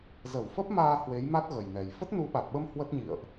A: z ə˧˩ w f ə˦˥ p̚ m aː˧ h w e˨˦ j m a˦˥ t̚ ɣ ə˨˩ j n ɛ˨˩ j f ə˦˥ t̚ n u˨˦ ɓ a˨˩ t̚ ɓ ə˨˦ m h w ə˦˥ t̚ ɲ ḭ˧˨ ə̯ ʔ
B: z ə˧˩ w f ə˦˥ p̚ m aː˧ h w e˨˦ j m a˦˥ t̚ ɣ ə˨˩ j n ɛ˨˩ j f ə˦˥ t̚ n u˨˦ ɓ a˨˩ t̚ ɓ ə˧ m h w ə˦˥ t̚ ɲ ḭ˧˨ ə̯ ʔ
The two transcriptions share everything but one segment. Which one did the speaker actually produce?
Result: B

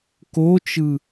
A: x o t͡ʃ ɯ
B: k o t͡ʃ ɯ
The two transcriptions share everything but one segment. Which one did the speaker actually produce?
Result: B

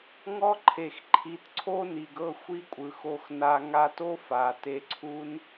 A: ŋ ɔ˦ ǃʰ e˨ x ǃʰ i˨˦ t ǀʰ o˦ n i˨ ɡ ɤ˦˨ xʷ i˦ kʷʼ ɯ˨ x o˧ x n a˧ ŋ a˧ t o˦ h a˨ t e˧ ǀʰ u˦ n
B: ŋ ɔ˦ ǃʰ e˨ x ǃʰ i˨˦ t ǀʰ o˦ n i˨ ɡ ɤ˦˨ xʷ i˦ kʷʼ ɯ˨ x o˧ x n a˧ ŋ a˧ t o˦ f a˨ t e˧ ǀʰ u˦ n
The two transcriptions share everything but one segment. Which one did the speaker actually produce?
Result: B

